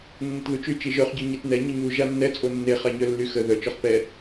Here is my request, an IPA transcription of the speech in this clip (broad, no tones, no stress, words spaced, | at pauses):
nːətðut͡ʃy t͡ʃiʒœχɟo ɲetnɛ ɲəɲu ʒanːɛt͡sʼo nːeχaɲœ lːyxə ðœt͡ʃɔχ pɛ